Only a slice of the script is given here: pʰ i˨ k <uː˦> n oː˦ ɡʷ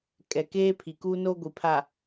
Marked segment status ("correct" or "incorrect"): correct